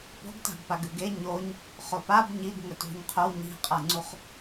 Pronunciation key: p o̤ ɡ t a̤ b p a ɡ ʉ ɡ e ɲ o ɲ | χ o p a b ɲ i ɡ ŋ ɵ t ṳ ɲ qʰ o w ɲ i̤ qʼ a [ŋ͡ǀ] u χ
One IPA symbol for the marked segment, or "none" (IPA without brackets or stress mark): ŋ͡ǀ